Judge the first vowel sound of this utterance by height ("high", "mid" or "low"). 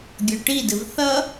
mid